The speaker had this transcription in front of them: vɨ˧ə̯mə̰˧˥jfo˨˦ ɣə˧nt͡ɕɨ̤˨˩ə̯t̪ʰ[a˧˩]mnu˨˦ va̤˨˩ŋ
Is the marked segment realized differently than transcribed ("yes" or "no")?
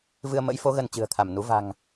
no